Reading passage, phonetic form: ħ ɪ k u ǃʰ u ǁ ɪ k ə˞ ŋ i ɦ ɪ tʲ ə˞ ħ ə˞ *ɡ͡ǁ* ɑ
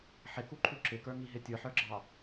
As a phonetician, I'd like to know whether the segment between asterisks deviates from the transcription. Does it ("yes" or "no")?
no